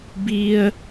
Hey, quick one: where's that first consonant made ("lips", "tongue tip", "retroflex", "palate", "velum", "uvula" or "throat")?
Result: lips